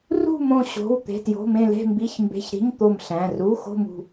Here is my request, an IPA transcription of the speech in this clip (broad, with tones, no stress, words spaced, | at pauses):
rṳ˥˧ mõ˥˧ɕo̤˧˥˧w t̪e̤˧˥˧tjo̤˧˥˧mẽ˥˧ le̤˥˧mbi˧˥˧çmbe̤˧˥˧çɾi̤˧˥˧ɲ t̪o˥˧mɬæ̃˧˥˧ ru˧˥˧ xo̤˥˧mṳ˥˧